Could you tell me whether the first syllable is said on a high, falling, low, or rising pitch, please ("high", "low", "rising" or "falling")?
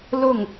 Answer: falling